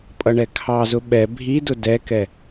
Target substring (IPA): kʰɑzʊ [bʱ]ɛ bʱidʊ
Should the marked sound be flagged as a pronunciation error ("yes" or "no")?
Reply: yes